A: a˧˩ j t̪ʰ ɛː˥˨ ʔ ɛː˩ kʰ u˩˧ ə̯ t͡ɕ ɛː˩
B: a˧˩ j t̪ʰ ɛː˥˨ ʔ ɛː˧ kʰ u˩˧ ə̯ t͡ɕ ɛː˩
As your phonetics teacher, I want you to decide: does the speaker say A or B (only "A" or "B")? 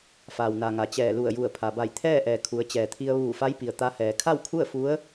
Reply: A